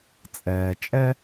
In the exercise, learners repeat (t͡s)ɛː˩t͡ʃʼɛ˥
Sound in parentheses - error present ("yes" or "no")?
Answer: yes